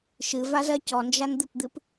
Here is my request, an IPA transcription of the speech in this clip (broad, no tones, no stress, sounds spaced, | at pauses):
ʃ ɨ v a z ɜ c ɔ n d͡ʒ a n d̪ ɨ p d̪ ɨ p